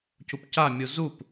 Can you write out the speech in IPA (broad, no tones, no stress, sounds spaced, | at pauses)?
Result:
c u p c a mʲ u z u p